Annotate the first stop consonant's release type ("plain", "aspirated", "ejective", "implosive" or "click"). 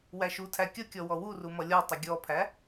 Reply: aspirated